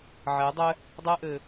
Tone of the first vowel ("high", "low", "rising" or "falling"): rising